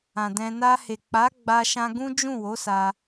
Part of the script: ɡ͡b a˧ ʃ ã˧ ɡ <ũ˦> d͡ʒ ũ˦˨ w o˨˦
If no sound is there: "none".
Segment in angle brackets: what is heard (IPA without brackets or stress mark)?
ũ˦